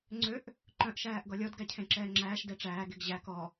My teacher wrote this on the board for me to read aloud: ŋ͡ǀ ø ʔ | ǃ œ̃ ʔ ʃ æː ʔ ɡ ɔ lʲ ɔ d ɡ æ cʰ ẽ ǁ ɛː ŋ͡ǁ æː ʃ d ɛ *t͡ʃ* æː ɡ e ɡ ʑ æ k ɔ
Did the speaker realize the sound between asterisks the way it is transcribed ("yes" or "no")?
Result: no